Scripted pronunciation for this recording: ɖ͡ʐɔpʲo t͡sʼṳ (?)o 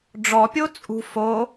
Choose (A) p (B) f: B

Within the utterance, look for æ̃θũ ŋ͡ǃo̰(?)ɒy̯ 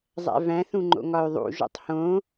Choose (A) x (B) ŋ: B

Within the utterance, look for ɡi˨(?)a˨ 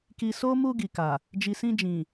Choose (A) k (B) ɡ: A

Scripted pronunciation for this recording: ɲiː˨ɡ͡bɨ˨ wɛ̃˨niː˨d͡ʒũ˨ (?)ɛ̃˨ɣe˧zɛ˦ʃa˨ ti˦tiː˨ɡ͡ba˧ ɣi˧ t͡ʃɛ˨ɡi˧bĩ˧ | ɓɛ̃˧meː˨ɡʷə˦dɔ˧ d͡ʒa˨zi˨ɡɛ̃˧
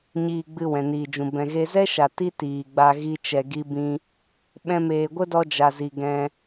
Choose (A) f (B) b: B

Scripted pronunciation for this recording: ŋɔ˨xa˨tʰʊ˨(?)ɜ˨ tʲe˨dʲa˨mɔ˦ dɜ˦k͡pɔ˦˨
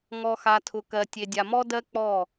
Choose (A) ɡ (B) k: B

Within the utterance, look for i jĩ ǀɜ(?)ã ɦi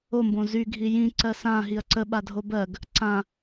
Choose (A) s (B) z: A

